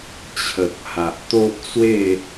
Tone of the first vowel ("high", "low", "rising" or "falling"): low